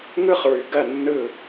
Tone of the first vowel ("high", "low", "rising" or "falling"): high